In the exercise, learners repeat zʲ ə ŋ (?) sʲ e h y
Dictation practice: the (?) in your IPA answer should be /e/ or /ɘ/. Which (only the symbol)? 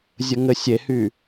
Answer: ɘ